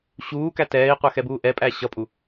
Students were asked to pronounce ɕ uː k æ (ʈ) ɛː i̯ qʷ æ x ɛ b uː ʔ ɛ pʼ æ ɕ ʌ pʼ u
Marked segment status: incorrect: t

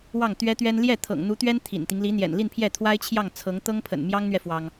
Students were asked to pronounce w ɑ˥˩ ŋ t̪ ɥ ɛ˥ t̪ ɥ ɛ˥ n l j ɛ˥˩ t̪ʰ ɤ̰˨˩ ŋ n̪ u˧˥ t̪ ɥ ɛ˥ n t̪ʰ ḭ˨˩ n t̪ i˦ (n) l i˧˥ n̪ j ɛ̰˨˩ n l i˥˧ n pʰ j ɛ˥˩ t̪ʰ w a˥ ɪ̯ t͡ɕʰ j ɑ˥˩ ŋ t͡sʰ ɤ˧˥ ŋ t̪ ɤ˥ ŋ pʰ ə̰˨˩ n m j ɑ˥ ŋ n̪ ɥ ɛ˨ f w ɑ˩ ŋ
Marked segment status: incorrect: ŋ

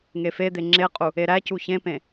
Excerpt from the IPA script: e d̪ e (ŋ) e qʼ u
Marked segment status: incorrect: ŋ͡ǁ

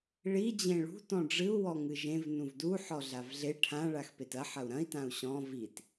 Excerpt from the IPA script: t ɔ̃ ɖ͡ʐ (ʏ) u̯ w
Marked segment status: incorrect: ɨ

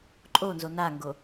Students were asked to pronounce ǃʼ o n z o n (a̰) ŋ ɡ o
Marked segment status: incorrect: a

